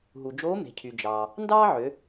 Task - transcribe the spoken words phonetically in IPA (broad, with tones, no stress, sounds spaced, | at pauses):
ɦ u˩ d͡ʒ oː˧˥ m e̤˩ cʰ y˩ d͡ʒ ɑː˩ | n d ɑː˥ ʕ ø˩˧